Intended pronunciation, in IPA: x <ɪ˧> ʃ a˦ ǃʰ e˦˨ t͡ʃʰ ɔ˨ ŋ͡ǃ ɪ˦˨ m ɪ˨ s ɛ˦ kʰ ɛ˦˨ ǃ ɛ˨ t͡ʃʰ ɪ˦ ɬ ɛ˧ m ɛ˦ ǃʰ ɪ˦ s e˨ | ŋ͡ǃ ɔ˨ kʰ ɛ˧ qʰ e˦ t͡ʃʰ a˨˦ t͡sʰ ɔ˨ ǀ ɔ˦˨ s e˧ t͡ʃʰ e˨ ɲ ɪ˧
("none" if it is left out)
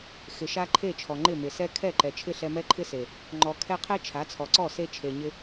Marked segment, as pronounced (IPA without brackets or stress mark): ɪ˨